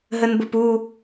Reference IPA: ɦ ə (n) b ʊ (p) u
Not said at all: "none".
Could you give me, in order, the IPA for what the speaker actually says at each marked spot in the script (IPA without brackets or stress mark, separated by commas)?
n, p